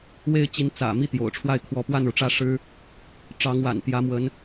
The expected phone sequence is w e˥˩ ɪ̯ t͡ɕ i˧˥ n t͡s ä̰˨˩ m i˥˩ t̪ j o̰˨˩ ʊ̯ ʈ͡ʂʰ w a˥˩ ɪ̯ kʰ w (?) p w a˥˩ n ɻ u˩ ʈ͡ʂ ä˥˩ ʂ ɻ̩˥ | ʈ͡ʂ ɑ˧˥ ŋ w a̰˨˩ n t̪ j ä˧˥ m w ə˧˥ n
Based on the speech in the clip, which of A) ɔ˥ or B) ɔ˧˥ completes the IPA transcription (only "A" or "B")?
B